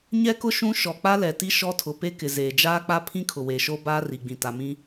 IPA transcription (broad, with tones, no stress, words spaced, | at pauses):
ɲɛ˦kʊ˦ ʃũ˦ ʃɔ˨k͡pa˦lɛ˨ti˦ ʃɔ˦ tʰʊ˨pe˦kɪ˨zeː˨ d͡ʒaː˦k͡pa˦pʰĩ˦ kʰʊ˨weː˨ʃoː˦ baː˦ri˨ɡ͡bĩ˨ ta˨mĩ˦